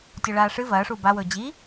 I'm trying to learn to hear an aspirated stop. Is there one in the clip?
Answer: no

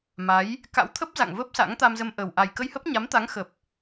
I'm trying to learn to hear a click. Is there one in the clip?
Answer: no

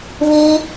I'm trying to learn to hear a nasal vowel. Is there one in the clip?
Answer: no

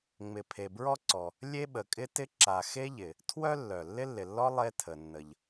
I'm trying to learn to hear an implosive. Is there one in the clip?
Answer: yes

